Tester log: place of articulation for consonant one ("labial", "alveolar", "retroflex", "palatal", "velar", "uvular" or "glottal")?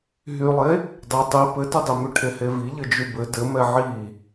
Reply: glottal